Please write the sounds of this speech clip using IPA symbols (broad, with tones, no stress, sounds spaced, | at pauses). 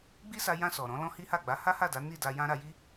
ɡ͡b i˦ s a˧ j ã˧ s ɔ˨ ɾ ɔ̃˨˦ l ɔ̃˦ h i˦ h a˦˨ ɡ͡b a˨˦ h a˦ h a˦˨ d a˨˦ n i˦˨ d a˧ j ã˦ ɾ a˧ j i˦